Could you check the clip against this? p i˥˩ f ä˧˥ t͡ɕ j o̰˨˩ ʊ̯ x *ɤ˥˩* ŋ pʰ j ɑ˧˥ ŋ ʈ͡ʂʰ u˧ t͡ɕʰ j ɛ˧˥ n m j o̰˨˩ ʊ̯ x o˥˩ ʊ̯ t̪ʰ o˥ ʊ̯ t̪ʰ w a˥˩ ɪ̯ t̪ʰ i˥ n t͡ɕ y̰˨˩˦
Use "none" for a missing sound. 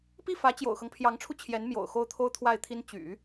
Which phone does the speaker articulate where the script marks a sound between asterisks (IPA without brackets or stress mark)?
ɤ˦